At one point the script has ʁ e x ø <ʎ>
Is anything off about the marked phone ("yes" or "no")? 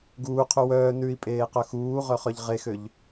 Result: no